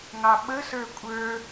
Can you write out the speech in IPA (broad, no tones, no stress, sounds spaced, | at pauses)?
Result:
ŋ ɑ ɓ ə s ə˞ kʷʼ ə˞